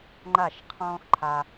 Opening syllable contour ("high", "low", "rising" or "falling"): falling